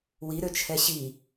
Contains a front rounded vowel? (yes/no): yes